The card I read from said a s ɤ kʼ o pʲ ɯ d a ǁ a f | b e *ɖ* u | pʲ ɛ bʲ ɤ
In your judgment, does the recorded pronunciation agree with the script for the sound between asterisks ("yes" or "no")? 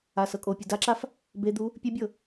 no